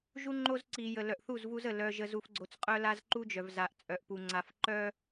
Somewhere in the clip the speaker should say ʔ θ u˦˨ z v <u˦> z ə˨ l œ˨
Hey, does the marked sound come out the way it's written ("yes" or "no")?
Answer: yes